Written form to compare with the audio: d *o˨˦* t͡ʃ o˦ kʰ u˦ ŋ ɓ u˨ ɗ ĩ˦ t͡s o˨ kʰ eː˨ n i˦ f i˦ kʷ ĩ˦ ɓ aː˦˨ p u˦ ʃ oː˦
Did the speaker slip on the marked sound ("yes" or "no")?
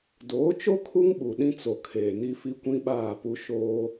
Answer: yes